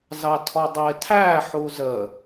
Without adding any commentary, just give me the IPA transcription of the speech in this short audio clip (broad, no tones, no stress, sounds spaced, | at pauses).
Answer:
z ɑ tʰ ɔ dˤ ɪː tʰ æ ħ u z ə